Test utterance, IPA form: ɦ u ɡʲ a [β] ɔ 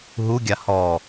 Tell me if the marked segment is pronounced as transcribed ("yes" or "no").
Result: no